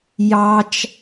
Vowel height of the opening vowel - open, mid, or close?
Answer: open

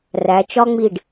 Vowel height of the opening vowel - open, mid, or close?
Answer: open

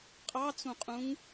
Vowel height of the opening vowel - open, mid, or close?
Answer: open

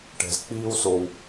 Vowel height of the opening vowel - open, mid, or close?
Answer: mid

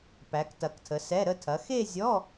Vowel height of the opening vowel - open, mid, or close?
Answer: open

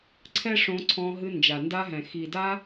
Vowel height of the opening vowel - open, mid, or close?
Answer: mid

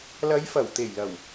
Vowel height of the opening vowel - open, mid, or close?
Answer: open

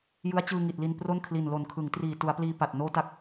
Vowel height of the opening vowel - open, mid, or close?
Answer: close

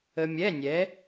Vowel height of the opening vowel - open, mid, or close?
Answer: mid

